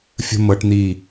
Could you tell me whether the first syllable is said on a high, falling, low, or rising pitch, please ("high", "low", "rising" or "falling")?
high